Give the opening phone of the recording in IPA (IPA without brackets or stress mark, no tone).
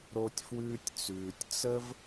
ɾ